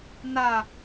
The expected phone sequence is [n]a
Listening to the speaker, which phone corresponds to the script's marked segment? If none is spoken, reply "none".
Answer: n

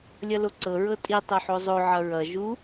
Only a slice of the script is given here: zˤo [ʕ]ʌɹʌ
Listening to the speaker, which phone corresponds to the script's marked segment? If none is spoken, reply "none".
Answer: ʕ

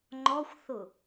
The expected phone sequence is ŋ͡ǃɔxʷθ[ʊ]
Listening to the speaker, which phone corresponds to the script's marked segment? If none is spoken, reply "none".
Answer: ʊ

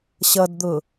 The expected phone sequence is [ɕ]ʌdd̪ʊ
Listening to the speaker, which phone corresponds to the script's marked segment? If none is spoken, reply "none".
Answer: ɕ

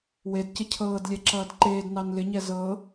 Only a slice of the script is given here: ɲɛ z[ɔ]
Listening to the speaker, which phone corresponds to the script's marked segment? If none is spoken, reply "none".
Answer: ɤ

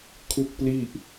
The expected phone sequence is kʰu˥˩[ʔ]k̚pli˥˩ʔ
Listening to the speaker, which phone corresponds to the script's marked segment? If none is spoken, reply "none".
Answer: none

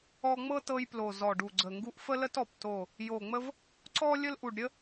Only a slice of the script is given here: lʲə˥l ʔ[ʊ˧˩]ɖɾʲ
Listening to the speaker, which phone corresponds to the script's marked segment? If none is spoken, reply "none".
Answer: u˧˩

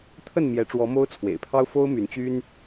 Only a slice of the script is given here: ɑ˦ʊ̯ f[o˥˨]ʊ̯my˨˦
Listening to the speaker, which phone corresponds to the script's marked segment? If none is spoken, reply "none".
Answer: o˦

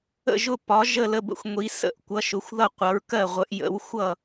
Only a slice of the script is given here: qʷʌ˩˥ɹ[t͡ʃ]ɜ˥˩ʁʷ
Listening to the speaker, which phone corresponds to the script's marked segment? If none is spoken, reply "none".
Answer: k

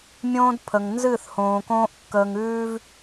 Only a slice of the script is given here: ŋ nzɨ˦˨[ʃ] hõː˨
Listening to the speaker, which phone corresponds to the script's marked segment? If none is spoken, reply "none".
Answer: θ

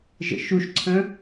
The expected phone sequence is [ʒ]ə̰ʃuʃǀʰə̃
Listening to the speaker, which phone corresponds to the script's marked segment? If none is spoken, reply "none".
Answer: ʒ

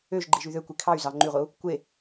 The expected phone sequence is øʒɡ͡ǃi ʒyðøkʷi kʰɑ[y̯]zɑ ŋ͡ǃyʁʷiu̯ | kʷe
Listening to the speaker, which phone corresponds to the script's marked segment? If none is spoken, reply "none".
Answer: y̯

